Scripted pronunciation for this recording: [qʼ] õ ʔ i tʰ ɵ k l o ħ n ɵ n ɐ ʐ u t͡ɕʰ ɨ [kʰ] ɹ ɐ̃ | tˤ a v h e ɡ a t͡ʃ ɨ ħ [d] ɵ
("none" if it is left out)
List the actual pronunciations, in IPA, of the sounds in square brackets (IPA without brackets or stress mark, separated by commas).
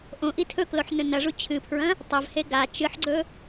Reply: ʔ, pʰ, ɡ͡ǀ